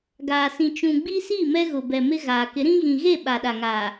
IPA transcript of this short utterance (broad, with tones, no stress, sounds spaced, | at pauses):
ɡ aː˨ s ĩ˨ t͡ʃ ũ˨ ɡ͡b i˦ s i˦˨ m ɛ˦ ɣ ʊ˨ b ɛ˨ m ɪ˦ ɣ aː˨ k ɪ˨˦ ɾ ĩ˦ ɣ ĩ˨ ɣ e˦˨ ɓ a˨ ɗ a˨ ŋ a˨